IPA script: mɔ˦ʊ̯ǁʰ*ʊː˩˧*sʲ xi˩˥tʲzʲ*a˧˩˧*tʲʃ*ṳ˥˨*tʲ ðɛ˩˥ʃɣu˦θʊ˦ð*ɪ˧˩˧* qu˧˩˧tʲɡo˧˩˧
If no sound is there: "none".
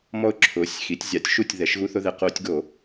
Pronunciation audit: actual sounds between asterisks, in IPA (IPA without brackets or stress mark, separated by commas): ʊː˩˥, a˧˩˧, u˥˨, ɪ˧˩˧